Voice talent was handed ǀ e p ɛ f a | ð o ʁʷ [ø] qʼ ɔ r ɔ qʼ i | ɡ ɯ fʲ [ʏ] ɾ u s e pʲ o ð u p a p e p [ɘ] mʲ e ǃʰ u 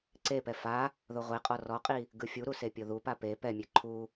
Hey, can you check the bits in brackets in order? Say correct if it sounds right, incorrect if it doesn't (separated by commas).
incorrect, incorrect, incorrect